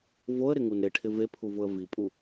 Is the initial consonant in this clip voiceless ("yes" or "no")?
no